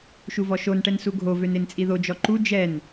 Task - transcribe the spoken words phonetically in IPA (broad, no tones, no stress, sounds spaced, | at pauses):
ʃ u v ɔ ʃ o n ʈ ɛ n s u ɡʱ o v ø n e n t͡sʼ i ð o d͡ʒ ɔ ǃ u d͡ʒ ɛ n